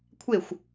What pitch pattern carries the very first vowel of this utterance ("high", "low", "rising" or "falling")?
falling